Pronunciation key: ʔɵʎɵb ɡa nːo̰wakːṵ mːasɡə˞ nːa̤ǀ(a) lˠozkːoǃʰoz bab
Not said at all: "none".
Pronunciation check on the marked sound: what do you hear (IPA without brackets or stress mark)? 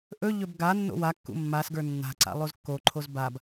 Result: a̰